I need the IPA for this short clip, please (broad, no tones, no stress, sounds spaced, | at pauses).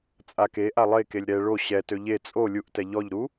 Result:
t͡sʼ a k e ʔ a lˠ e k e lʲ ɾ ɛ ɭ o ɕ ɛ t ø ʎ e t͡sʼ o lʲ u ʔ t ɛ ʎ ɔ ʎ ɾ u